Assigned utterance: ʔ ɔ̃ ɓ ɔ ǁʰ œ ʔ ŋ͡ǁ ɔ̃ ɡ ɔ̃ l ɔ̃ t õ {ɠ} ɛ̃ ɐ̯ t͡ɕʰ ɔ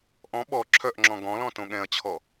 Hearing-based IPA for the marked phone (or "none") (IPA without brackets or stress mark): ɠ